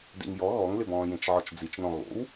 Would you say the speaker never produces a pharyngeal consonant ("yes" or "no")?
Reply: no